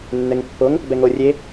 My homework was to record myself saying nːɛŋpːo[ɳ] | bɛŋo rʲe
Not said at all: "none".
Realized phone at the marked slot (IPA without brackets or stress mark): ŋ